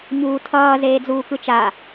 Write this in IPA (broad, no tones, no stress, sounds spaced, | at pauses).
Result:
ɲ uː tʰ ʌː z eː d͡z uː k ɯ t͡ʃ a